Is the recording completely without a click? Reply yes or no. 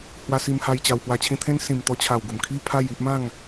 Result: yes